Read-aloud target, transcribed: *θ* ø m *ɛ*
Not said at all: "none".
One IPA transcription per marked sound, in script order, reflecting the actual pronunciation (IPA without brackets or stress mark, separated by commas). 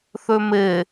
θ, e